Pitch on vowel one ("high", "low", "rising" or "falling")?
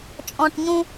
low